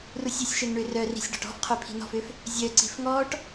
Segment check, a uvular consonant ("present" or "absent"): present